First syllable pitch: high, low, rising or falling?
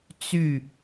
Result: falling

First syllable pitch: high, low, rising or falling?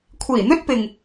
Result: low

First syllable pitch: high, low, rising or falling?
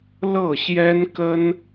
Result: falling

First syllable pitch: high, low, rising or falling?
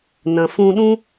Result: low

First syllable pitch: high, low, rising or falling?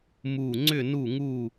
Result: falling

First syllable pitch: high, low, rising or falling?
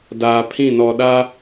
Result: low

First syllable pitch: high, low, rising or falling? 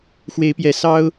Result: rising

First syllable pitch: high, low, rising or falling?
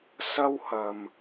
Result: high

